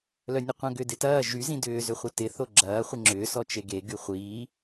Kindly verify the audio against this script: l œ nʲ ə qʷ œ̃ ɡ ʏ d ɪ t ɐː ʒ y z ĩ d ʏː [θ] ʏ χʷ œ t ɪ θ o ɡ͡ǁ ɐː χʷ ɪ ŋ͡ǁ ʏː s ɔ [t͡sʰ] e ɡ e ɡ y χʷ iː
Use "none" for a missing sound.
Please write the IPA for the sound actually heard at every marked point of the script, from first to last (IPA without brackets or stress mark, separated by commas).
z, t͡ʃ